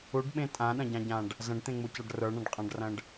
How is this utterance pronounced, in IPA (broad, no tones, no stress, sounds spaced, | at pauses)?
u ɖ ɓ ẽ tʼ ã ɗ ɐ̃ ɟ ã ɟ ã ɖ | z ɐ̃ ɖ t̪ ẽ ŋ͡m u c a ɖ r ə˞ ɳ ã ɖ qʼ ã ɖ r ɐ̃ ɖ